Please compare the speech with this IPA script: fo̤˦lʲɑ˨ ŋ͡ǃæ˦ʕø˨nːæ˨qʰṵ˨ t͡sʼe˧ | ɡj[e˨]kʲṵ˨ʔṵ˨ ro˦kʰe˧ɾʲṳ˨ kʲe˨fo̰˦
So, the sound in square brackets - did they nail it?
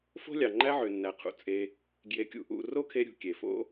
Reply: yes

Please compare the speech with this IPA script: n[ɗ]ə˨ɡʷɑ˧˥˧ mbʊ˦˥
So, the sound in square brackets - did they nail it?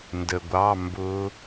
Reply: no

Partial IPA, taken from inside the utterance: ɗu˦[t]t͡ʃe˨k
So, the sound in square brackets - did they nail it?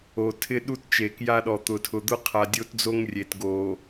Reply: yes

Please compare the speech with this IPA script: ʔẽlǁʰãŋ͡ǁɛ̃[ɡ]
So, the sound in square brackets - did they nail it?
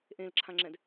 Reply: no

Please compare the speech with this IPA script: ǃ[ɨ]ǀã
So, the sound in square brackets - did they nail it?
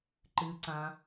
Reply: yes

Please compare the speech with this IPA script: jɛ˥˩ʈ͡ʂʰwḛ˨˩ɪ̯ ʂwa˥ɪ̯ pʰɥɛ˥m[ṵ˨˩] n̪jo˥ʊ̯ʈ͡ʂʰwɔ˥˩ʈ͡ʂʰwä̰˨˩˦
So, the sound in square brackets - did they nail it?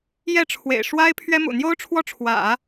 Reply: yes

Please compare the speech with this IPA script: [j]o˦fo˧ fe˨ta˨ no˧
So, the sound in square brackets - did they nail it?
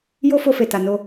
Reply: yes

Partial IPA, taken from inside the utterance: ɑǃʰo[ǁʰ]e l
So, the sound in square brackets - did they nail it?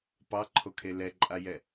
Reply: no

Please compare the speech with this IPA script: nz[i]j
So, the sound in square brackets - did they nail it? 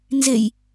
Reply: no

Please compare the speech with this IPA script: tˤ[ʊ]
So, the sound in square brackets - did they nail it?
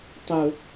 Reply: yes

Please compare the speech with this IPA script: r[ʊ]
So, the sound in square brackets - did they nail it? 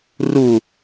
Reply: no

